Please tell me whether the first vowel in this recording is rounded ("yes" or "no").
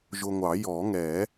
yes